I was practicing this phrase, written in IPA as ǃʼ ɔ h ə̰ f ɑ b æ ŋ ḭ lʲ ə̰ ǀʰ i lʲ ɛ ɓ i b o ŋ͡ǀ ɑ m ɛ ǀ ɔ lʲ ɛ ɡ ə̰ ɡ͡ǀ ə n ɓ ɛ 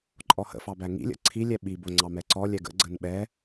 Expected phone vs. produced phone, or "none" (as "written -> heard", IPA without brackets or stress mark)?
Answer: none